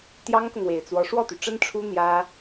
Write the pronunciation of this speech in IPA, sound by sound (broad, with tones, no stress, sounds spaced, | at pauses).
t̪ j ɑ˥ ŋ k ʊ˨ ŋ w e˨˩ ɪ̯ t͡s w ɔ˧˥ ʂ w ɔ˥˩ t̪ y˩ ʈ͡ʂ ə˥ n ʈ͡ʂʰ u˥ n̪ j ä˥